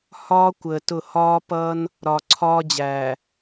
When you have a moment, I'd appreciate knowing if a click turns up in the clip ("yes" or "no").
yes